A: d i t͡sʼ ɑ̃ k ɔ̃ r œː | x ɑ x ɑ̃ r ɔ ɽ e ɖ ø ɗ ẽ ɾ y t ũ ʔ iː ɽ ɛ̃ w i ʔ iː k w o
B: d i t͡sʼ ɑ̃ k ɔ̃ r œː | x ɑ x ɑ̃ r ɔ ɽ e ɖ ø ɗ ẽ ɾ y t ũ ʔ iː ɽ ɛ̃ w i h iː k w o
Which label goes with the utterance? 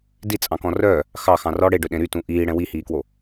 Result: B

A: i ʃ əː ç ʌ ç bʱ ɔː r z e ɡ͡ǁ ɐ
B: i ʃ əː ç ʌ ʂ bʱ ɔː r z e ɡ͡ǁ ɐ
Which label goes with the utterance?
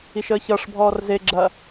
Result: B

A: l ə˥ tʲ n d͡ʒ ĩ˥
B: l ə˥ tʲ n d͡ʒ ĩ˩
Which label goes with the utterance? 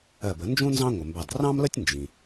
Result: B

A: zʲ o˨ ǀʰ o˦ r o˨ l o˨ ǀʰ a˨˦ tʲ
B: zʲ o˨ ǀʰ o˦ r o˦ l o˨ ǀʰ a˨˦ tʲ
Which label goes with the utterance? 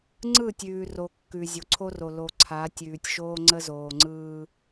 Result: A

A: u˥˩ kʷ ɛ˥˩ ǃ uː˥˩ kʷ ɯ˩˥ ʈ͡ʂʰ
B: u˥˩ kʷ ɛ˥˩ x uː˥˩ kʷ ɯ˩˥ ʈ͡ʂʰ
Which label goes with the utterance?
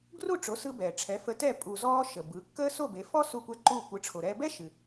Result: A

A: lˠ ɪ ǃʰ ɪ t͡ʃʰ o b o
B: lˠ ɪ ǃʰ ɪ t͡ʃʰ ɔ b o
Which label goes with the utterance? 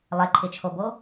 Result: A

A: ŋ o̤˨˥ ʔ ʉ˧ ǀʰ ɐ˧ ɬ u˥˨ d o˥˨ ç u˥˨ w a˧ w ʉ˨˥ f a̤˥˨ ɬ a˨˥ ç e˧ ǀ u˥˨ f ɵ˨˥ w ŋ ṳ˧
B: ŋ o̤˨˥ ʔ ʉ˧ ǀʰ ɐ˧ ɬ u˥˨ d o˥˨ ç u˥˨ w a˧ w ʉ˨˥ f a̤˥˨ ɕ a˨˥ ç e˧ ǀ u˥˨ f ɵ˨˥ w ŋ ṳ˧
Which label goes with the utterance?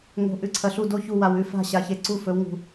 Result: B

